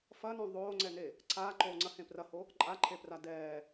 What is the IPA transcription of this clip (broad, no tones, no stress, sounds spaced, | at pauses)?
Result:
f ɐ n õ ðˤ oː ŋ͡ǀ ɛ n e | ǀʰ aː ǃ oː ŋ͡ǀ ɐ h ẽ p r ɐ h o | ǃʼ a ǃʰ e p r a d ɛː